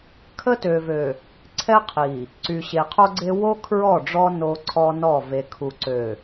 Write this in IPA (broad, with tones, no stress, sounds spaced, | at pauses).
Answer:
kʰ ə˦ t ø˨ v ø˨ | ǀʰ ɛ˦ qʰ i˨ | ǀ y˨ ɕ e˨ qʰ o˦ ɡ͡ǀ e˦ w o˦ kʰ ɹ ɔ˦˨ ɖ͡ʐ ɔ˦ n o˦ ǀʰ ɔ˦ n ɔ˦˨ v e˨ kʰ u˨ ǀ ø˨